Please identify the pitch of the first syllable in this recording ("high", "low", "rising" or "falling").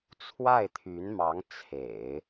falling